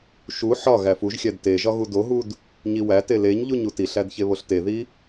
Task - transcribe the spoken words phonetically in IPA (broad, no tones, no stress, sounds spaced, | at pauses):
ʃ u ħ ɒ ɣ æ f u ʒ xʲ æ d t e ʒ ɒ ɣ u d o ɦ u d | ɲ i w æ t e l e ɲ ʎ u ɲ u t i ɬ æ d ç e β o ɬ t e ð i